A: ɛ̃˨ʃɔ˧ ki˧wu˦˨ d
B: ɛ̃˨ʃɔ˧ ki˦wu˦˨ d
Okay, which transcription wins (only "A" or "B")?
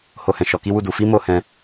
B